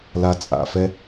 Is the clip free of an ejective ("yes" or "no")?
no